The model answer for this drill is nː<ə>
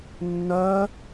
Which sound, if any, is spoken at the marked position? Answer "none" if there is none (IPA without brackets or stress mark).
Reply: œ